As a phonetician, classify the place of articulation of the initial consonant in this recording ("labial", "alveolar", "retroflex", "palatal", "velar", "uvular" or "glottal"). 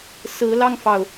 alveolar